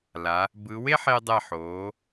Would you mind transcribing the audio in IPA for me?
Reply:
l a˩˧ | b ɯ˩˧ w e˥ ħ e˧ dˤ ɛ˧˩ ħ oː˩˧

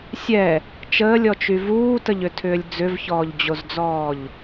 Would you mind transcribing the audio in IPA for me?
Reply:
sʲ ɛ | t͡ʃ əː lʲ ɔ t͡ʃ y v uː t ə ʎ ʏ tʰ ʏː lʲ d͡z ʏ v ç ɔː ʎ d͡ʑ o z d͡z ɔː ʎ

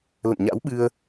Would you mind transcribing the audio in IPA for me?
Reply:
l ə̰˧˨ n ɲ a̰˧˥ w ɓ ɨ˧ ə̯

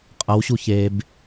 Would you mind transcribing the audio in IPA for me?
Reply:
qʼ ʌ w ɕ u ç e b

